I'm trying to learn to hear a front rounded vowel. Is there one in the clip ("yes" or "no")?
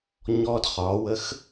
no